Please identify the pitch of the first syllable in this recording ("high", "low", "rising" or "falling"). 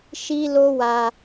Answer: high